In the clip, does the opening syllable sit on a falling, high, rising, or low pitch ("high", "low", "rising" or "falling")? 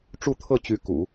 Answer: falling